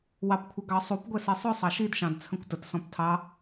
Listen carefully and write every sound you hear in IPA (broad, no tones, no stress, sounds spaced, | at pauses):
w ɑ p kʷʰ ɪ ɡ ɑ sˤ u p ɡʷ ɛ s i sˤ ʊ sˤ ɑ ʃ i d ʃ ɑ̃ d t͡sʰ ə̃ kʷ t ə t s ɔ̃ p tʰ ɑ